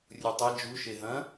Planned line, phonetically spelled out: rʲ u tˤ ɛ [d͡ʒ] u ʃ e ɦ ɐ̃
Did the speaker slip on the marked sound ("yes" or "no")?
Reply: no